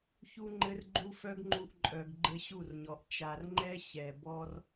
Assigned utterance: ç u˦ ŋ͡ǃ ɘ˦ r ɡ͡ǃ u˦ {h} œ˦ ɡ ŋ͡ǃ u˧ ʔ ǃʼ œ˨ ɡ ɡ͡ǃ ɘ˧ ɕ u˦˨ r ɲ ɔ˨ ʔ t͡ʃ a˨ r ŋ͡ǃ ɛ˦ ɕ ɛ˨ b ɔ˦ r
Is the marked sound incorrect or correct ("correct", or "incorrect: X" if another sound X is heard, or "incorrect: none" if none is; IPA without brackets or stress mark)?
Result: incorrect: f